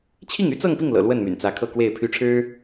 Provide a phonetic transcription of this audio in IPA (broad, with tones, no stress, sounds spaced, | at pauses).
t͡ɕʰ i˥˩ ŋ y˥ t͡s ɤ˥˧ ŋ p i˥˩ ŋ l ɤ̰˨˩ l w ə˥˩ n m y̰˨˩ n t͡s ä˧˥ kʰ ɤ˥˧ k w e˥˩ ɪ̯ pʰ y˥ ʈ͡ʂʰ ɻ̩˥